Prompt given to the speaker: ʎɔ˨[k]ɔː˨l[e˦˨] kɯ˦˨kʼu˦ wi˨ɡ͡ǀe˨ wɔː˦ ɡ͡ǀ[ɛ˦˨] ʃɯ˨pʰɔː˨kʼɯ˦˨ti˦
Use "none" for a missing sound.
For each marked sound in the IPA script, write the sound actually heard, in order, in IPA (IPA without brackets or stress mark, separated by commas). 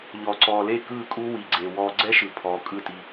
ǀ, e˦˨, ɛ˦